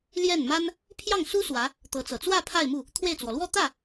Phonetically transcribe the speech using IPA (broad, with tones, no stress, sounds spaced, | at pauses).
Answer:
l j ɛ˥˩ n m a˥ n | pʰ j ɑ˥˩ ŋ s u˥ s w ä˧˥ | t̪ ɤ˧˥ t͡s ɤ˨˩ t͡s w ä˥˧ pʰ a˥˧ ɪ̯ m u˥˩ | t̪ʰ w e˥˩ ɪ̯ t͡s w ɔ˩ l w ɔ˥˧ t̪ ä˥˩